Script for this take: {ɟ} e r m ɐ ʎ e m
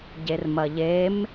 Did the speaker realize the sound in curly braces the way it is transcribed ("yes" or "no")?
yes